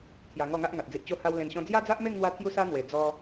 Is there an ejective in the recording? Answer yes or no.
no